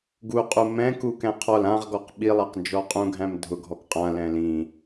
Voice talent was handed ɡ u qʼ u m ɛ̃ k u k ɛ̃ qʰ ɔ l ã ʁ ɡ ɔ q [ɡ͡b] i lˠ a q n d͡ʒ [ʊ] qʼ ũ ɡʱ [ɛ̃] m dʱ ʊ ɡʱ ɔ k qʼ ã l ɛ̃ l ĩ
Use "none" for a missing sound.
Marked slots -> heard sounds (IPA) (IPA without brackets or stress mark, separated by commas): ɓ, ɔ, æ̃